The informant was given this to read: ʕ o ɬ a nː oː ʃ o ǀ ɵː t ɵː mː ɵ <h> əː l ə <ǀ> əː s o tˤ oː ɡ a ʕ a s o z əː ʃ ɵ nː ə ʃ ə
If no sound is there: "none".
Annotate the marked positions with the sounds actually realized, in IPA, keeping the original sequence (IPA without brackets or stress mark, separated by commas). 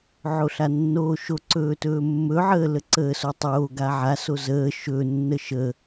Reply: ʕ, ǀ